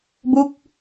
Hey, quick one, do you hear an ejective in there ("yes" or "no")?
no